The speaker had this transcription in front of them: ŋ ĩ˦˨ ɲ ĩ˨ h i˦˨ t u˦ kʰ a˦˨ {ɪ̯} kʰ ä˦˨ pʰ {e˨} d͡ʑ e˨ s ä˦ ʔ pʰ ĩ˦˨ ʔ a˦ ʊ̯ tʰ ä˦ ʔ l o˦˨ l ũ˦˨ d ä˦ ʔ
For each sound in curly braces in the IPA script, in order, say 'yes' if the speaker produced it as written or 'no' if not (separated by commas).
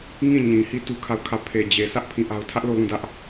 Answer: no, yes